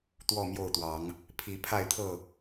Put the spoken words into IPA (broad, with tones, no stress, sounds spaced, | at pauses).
t̪ w ɔ˥˨ m j o˥˨ ʊ̯ t̪ w ɑ˨˦ ŋ | pʰ i˨˦ pʰ a˥˨ ɪ̯ t̪ʰ ɤ˥˨